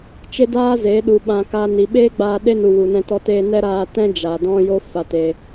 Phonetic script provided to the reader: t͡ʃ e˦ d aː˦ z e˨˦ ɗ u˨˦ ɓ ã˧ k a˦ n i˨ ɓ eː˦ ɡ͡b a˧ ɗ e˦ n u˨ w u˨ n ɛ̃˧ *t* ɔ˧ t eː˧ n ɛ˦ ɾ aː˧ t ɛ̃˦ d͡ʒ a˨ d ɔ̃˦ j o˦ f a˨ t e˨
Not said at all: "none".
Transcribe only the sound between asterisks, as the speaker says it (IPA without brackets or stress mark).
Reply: t